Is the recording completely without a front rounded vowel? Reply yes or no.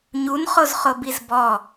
yes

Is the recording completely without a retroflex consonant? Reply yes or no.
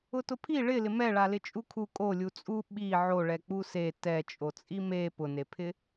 no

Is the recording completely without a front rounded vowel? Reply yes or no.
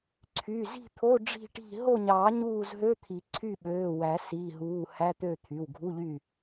no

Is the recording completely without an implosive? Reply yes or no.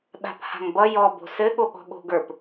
no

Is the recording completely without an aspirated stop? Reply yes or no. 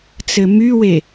yes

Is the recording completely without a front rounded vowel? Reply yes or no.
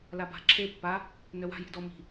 no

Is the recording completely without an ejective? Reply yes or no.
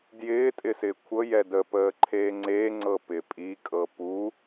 no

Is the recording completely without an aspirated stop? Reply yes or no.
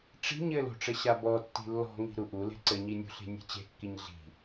yes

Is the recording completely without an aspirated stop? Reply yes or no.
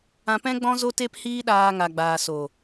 yes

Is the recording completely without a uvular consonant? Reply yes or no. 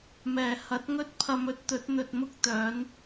yes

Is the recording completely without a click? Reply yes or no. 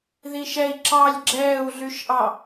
no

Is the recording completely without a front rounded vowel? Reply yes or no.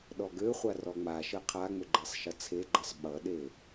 no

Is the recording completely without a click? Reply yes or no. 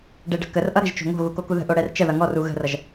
yes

